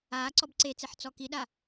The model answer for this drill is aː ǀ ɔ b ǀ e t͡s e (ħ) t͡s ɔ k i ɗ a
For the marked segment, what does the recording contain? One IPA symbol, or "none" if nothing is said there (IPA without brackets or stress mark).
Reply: ħ